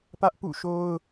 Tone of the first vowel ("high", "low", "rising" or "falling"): high